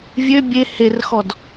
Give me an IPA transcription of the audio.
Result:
vʲ ø bʲ e h e r x ɔ d

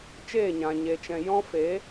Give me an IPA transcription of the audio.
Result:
t͡ʃ eː˦˨ ɲ ã˨ ɲ e˨ t͡ʃ ɛ̃˨ j ɔ̃˦ f e˨˦

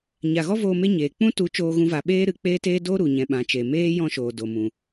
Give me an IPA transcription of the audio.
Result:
ɲ a˨ ɣ ɔ˦ v oː˧ m e˦ ɲ eː˨ k͡p ũ˦ t u˨˦ t͡ʃ oː˧ ɣ ũ˧ v a˨ ɓ eː˦ ɾ ɨ˧ k͡p eː˦ t eː˦ d o˦ ɾ u˨ ɲ ɛ̃˧ ɓ ã˨˦ t͡ʃ e˨ m eː˦ j ɔ̃˦ ʃ oː˨ d o˨ m ũ˨

